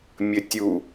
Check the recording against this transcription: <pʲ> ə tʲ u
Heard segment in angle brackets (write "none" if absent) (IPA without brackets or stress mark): mʲ